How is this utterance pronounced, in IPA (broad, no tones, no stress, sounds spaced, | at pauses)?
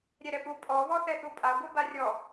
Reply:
ɾʲ ɛ ɾ ɛ p u pʼ ɔ β ɔ θ ɛ θ u pʼ a ɡʷ i b a rʲ ɔ